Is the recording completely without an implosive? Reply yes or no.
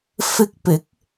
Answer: yes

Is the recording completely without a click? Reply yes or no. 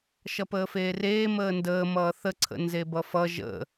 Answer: no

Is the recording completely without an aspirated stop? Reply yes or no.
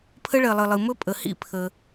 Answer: no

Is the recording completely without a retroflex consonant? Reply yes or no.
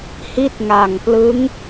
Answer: yes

